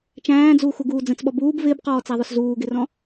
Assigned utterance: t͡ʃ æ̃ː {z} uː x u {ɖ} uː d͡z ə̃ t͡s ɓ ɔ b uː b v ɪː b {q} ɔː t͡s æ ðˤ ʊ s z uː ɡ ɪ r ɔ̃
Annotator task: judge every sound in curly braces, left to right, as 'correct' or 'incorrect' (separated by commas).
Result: incorrect, incorrect, correct